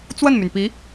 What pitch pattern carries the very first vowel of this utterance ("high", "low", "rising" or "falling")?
falling